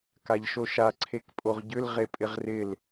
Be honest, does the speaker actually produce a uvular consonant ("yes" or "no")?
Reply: yes